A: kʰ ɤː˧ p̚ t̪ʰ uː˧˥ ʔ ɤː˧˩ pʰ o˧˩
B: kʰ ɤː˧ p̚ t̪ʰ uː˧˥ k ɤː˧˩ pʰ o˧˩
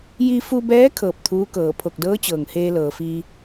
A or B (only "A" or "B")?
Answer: B